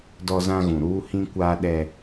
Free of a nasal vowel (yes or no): no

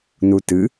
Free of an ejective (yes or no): yes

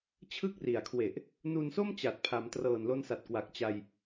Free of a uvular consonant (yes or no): yes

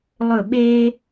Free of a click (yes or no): yes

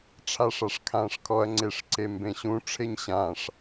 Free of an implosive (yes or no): yes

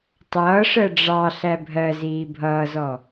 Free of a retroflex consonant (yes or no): no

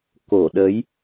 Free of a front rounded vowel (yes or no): yes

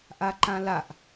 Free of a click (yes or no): no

